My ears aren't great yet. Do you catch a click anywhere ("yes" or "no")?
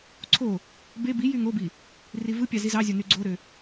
yes